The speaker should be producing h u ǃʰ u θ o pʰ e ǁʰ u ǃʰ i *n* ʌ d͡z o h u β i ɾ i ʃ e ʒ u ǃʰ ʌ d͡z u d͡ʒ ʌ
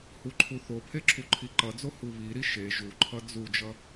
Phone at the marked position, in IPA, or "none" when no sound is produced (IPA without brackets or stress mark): ǃ